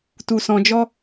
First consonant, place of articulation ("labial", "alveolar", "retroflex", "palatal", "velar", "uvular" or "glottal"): alveolar